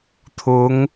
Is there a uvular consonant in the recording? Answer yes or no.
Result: no